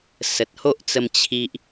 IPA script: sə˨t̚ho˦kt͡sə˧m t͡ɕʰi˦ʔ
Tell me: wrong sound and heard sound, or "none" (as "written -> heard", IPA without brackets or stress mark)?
k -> ʔ